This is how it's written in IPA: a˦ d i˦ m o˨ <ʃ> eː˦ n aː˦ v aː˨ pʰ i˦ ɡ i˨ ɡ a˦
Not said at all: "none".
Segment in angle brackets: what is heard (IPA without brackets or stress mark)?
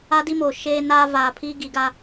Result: ʃ